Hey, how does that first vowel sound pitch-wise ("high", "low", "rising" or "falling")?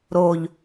low